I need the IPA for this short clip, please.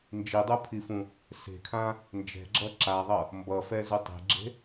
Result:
n d͡ʒ i dˤ u pʰ i f ũ | s e̤ kʰ ã | n d͡ʒ ɛ̤ ɡ͡ǁ ʌ ǁ a ðˤ ʌ | m b ʌ f ɛ z u tˤ e̤ ɡ͡ǁ e̤

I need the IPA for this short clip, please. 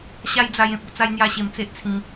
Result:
ɕ a˦ j d͡z a˧ j ẽ˨ p̚ u˧ t͡s a˧ j n̪ j a˥˧ ɕ e˧ m t͡s e˦ ʔ t͡sʰ ĩ˧

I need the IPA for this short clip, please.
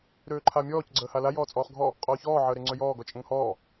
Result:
ɾ øː ǃʰ a mʲ ɔː c ɡ͡ǀ əː h a l a j ɔː t͡sʼ ɔː χ ɡʱ ɔ | qʼ ɔː ç ɔː ʕ əː ɾ e ŋ͡ǀ ø j ɔː ɡ ɔ t͡ʃʼ ə ŋ h ɔː

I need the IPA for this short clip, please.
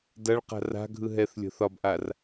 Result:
d ɐ ɭ q a̤ r a̤ ɡʱ ɯ ɦ ɛ θ lʲ ə̤ θ ɒ b ʔ a r

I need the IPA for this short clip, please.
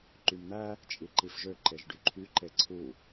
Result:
ǃ y m n̪ æ | t͡ʃʼ i ǃ i f ʒ ø ǃ e ʒ ɖ y ǃʰ y ǃ e ǀʰ u

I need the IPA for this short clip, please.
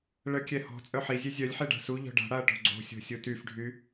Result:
ɭ ə kʲ ɛ h ɔ̤ t͡sʼ œ ħ i zʲ e zʲ œ lʲ ħ e ɖ a̤ s u ʎ ɔ̤ ɖ a̤ ɽ a ɐ̯ ʈ o̤ ɡ͡ǀ o̤ sʲ o̤ sʲ u t y f ɖʱ y

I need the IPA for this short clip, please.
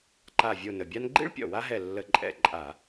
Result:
ǃ a˧˩ vʲ o˧˩ n ə˩ bʲ a˥ n ɡ͡ǃ ḭ˥ ɭ pʲ ɔ̰˩ w a˥ ɦ ɛ˧˩ lː ə˧˩˧ ǃʼ ɛ̰˧˩ ǃʼ a˧˩˧

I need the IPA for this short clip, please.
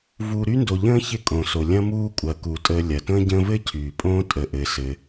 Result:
v uː˨ ɾ y˦ n d o˨ ʎ ə̃ː˥ ç ɪ˦ kʼ õ˩ s o˩ lʲ ɐ̃˦ m uː˦ kʷʼ ɐː˩ k u˩ tʼ əː˨ lʲ ɐ˩ t ə̃ː˦ ɟ ə̃ː˦ v ɘ˥ cʰ yː˩ pʼ õː˥ tʼ ə˩ ʔ ɘ˩ s ɘ˨

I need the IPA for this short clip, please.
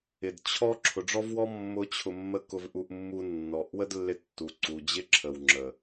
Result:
ɪ˨ d t͡ɕʰ ɔ˦ ǁʰ ʊ˨ ɖ͡ʐ ɔ˦ v w ɔ˦ mː ʊ˦ t͡ɕʰ ʊ˧ mː ə˦ k ʊ˧ v ʔ u˧ ʔ mː u˧ nː ɔ˨ ʔ w ə˦ d lː ɪ˧ tː u˨ ǀ u˨ d͡ʑ ɪ˦ ǁʰ ə˨ w ŋ͡ǁ ə˨

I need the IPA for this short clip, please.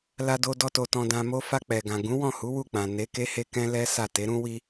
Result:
l a˧ d o˧ d ɔ˧ t o˨ t ɔ̃˨ d ã˨ m o˧ f a˧ k͡p ɛ˨ ɡ ã˨ ɡ ũ˨˦ w ɔ̃˦˨ h u˨˦ w u˦˨ k͡p ã˨ n e˨˦ k e˦ h e˦ k ɛ̃˦ l ɛ˦ s a˦˨ t e˨˦ ɾ ũ˦ w i˦

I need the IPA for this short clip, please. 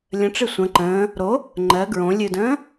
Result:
lʲ ə̃ ʈ͡ʂ ɨ sʷ ə̃ ǃ ə̃ː | ɾ o | ŋ͡ǃ ɜ ɡ ɹ õ lʲ ɨ d ə̃ː

